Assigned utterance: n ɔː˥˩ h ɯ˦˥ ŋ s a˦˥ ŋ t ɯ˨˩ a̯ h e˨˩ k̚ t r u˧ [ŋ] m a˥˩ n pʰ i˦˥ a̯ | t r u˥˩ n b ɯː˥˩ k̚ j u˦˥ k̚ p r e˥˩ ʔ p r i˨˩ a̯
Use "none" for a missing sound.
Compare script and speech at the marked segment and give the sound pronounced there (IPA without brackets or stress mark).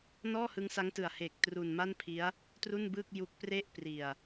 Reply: n